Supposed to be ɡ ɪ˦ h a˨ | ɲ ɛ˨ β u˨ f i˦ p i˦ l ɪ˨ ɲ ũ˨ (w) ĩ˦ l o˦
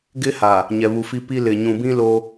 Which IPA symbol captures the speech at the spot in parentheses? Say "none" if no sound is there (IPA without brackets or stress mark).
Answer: b